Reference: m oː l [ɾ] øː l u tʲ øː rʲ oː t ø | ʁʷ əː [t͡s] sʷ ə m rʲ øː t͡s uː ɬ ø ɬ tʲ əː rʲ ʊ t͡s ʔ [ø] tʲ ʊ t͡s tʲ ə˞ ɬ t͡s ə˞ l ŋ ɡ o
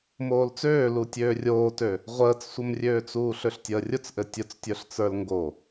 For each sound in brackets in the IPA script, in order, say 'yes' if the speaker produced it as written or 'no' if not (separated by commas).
no, yes, no